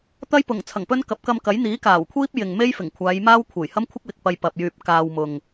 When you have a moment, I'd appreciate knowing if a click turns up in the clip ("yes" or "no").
no